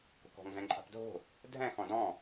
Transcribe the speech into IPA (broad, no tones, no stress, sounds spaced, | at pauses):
k o̤ k ɔ̤ ŋ z ɛ̃ ǃʼ a̤ p dʱ o̤ | dʱ ɛ̃ x ɔ̃ d ɔ̃